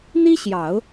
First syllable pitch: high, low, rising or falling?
high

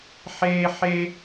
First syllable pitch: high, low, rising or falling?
high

